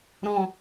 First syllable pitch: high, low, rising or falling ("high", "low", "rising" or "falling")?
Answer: low